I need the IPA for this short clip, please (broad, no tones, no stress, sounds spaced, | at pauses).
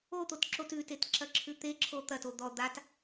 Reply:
o t̪ o t ǁ o t ʉ t e t ǁ ɐ ǁʰ ʉ t̪ e ǁʰ o t̪ ɐ t o d̪ ɔ d̪ a t